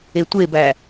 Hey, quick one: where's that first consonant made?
tongue tip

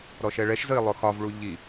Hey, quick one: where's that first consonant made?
tongue tip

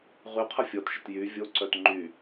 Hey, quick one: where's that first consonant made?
uvula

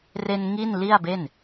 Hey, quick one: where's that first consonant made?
tongue tip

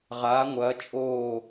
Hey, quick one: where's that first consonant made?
uvula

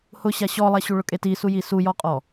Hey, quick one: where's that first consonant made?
throat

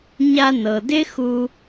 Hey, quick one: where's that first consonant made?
palate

